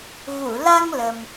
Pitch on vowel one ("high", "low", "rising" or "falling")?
low